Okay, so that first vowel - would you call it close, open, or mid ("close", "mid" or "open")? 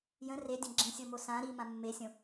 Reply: mid